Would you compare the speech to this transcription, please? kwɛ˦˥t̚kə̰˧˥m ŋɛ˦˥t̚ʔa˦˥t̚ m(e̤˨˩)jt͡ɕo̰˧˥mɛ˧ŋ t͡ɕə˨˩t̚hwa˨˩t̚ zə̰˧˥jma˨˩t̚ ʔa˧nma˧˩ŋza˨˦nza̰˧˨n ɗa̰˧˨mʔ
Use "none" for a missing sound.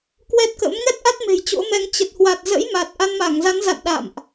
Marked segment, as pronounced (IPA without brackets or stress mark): e̤˨˩